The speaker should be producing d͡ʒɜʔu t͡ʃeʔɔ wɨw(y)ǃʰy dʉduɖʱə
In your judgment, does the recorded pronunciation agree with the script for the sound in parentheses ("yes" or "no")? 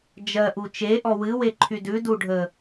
no